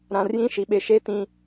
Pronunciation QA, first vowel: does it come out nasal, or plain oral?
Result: nasal